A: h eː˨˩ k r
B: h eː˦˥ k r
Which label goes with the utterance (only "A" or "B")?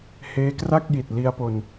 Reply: B